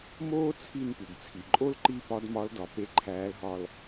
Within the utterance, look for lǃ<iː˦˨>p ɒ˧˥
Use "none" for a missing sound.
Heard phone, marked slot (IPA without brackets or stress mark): iː˦˨